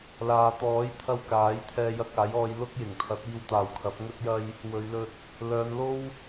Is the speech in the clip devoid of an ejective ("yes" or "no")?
yes